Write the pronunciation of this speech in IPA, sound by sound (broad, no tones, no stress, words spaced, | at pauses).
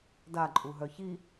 daǃʼuɦœ çi